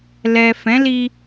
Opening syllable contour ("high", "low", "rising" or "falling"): low